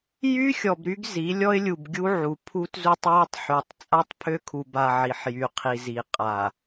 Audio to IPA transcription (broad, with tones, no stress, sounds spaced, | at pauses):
j y˦ xʲ ɔ˨ b ɾ y˦ ɡ z i˨˦ lʲ ɔ˦ ɪ̯ lʲ u˨ b ɡʲ u˦ ʕ u˨ pʰ u˦ t z u˦ tˤ j ɔ˦ tˤ ħ y˨ tˤ t͡sʼ a˦ tˤ pʰ ø˦ kʰ u˨ b a˨ ʕ i˨ ħ j y˨ qʰ i˨ z i˨ qʼ a˨